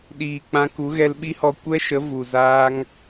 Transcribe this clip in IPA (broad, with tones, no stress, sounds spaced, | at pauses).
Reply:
ɗ iː˨ k͡p ã˧ k u˨˦ ɣ ɛ˧ l ɓ i˦ h ɔ˧ kʷ ɛ˦ ʃ ə˨˦ v u˨ z aː˦ ŋ